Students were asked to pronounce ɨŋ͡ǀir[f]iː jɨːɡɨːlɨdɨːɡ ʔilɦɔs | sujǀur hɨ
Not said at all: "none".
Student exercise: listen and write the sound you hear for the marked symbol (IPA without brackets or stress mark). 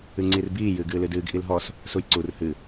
b